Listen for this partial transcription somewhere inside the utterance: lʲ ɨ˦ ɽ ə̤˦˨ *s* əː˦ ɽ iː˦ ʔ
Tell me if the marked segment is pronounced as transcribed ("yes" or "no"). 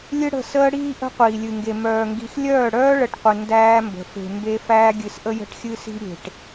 yes